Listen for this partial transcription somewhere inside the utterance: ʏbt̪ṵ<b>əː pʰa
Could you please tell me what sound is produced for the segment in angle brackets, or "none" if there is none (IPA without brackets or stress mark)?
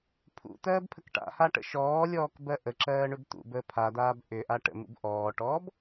b